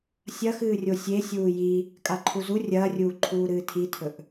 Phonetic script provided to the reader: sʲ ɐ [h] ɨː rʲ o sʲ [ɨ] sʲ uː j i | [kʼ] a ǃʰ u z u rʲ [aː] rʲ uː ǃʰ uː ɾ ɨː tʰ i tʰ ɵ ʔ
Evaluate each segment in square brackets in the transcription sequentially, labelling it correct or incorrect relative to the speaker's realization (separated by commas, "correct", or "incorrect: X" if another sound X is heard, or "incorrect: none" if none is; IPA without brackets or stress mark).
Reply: incorrect: x, incorrect: e, correct, incorrect: ɐː